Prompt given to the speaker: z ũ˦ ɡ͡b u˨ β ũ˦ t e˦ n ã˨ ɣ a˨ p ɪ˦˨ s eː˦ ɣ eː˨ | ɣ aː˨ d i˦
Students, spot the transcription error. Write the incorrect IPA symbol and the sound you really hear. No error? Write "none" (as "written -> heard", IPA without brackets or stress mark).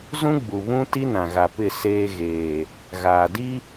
e˦ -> i˦